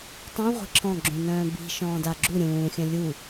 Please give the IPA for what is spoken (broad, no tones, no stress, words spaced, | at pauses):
tˤĩ ʁʷe̤ǁʰɔ̃ɡ͡ǁũnœ̃ː bi̤ ʃɔ̃ːdaɡ͡ǁu ɾʲũːxʲœ̃ lʲu